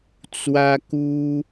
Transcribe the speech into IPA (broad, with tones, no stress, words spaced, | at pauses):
t͡swä˦ku˦